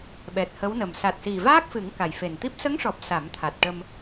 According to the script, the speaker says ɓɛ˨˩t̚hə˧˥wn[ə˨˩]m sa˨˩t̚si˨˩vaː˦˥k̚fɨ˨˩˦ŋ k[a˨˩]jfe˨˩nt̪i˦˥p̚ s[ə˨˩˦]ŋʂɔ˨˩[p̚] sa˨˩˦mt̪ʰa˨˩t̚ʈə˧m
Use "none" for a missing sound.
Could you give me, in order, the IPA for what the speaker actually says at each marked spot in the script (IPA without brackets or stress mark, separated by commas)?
ə˨˩, a˨˩, ə˧˥, p̚